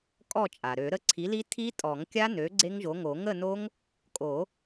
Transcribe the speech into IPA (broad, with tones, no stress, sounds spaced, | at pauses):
kʼ ɔ˥˨ t͡ʃʼ a˩ ɾ ø˨˩˦ ɾ ə˥˨ ǀʰ i˩˥ l i˦˥ tʰ i˦˥ tʼ ɔ˨˩˦ ŋ kʲ a˦˥ n ø˩˥ ɡ͡ǀ e˦˥ ŋ ʒ o˩˥ ŋ o˨˩˦ ŋ ə˥˨ n o˦˥ ŋ | kʼ o˨˩˦